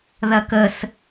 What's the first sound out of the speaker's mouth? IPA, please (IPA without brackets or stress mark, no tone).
ð